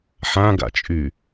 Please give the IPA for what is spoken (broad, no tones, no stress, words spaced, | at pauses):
ħãɡa̰t͡ʃʼy